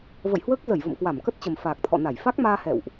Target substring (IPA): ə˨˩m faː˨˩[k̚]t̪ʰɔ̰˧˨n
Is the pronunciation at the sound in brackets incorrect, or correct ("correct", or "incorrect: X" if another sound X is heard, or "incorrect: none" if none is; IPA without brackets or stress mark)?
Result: correct